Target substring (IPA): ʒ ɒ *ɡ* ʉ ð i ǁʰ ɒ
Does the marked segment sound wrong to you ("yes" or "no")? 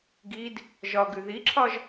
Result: no